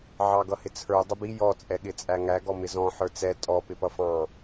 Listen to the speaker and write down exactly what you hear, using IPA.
ʕ ɑ ɡ ʌ h ɪ t͡sʰ ə˞ dˤ ʊ b i j ɔ t͡sʼ ɛ ɠ ɪ t͡sʼ æ ŋ æ ɡ ɔ m ɪ z ɔ̃ ħ ə˞ t͡s ɛ tʼ ɔ p ɪ p ʌ f ɑ̃

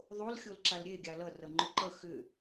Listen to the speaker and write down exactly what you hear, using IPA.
ðˤ o l xʲ o l ǁ a l ɾʲ e ɡʲ a l ʌ r ʌ ŋ͡ǃ ʏ ǃ ʌ x ʏ

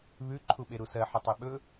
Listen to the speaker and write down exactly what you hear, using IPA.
β ʉ ǃʰ u ɓ e ɾ u s ɜ ħ ə tˤ e ɓ ɵ

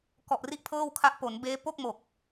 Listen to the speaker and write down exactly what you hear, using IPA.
k ɔ˨˩ ʔ r i˦˥ ʔ pʰ ɤː˥˩ w kʰ a˦˥ ʔ p o˩˦ n b eː˦˥ p o˥˩ k̚ m o˨˩ k̚

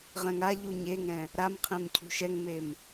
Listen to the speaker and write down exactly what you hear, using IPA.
ʁ ɛ̃ ŋ a ʎ u ɲ e ŋ ɛ̃ | ɾ a m qʰ ẽ m cʰ ṳ ʃ ɛ ŋ m e m

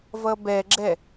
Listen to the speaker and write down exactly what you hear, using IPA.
v ʌ b ɛ ɡ͡ǁ ɛ

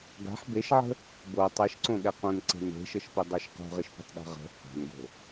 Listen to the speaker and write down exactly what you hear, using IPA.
ɡ a̤ ħ b e ʃ ʕ ə̤ | b o tˤ e ʃ ǀ õ ɠ ɛ q õ n ǀ e̤ n e̤ ʃ ə ʃ p ɪ dˤ o ʃ q o̤ ʁ ɪ ʃ p ə̤ tˤ ɗ a̤ ʁ ə̤ h a̤ n ɡ o̤

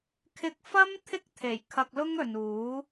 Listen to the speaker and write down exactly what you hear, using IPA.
kʰ ɪ˧ k̚ f ɐ˥ m t̪ʰ ɪ˥ k̚ t̪ʰ e˨˩ j kʰ ɐ˧ k̚ l ʊ˥ ŋ ɵ˨ n uː˨˥

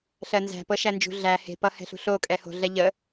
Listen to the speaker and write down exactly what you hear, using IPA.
ɬ ɜ n z æ̤ p ɤ ʃ æ n d͡ʒ ṳ ɮ æ h e̤ p ʌ h ɛ̤ ɬ ṳ ɬ o kʼ ɛ h o̤ ɮ ɛ ʎ ə

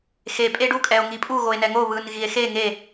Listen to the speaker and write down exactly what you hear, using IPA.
x e pʼ e ɖ u kʼ ɛ o̯ ŋ i pʼ u ɣ o e̯ n ɛ ŋ o β ɯ n ɣ i e̯ x e ŋ e

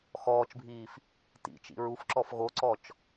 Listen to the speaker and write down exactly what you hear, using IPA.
x ɔː t͡ʃ bʱ iː f | t ḭ t͡ʃ ḭ ɹ u f ǁ ɔ f ɣ o ǀ ɔ t͡ʃ

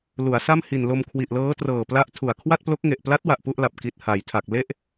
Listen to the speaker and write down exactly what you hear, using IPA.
l u˩˦ a̯ s a˥˩ m h i˨˩ n l o˧ m kʰ w i˨˩ ʔ l ɤː˦˥ t r ɤː˨˩ p l a˦˥ ʔ tʰ u˨˩ a̯ kʰ w a˥˩ t̚ p l o˦˥ k̚ ŋ e˨˩ ʔ p l a˦˥ t̚ w a˨˩ ʔ p u˥˩ ʔ l a˨˩ p̚ k i˨˩ t̚ h a˩˦ j tʰ a˨˩ k̚ l e˦˥ ʔ

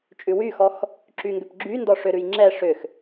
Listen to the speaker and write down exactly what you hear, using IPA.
t͡ʃʼ ʉ w y x ɔ x | ǁ y ŋ ɡ ʏ p ɡ͡ǁ y n d ɔ ʂ ʏ ɾ ʉ j ŋ͡ǁ ɛ ʂ ʏ x

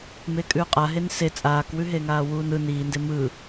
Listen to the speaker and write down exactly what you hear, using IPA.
m e kʼ ʉː qʼ a ɦ e n s e t͡sʼ aː k w ʉ ɦ e ŋ aː w uː n ɯ n iː n d e m ɯ

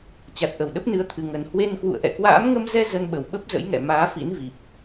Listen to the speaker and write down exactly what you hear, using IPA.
t͡ɕ a˨˩ t̚ ʔ ə˧˩ w ɗ ə˦˥ p̚ n ɨ˨˦ ə̯ t̪ʰ ɨ˧ ŋ ə˧ n h w e˧ n k w ṵ˧˨ ə̯ ʔ ɛ̰˧˨ k w a̰ː˧˥ m ŋ ə˧ m z ɛ˧ z ə˧ n ɓ ə˧˩ w ɓ ə˦˥ p̚ z ə̰˧˥ j ŋ ɛ̰˧˨ m aː˨˦ f ḭ˧˥ n v i˨˩ p̚

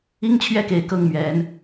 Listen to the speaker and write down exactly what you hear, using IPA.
i˦ ŋ t͡ɕʰ ɥ ɛ˥˨ k e˨˩ ɪ̯ k ɤ˥˨ ŋ m ɥ ɛ˨˦ n

